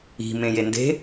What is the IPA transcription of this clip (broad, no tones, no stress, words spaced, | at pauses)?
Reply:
i̤ mẽjende̤